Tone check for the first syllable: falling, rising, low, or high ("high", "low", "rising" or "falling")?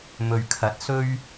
low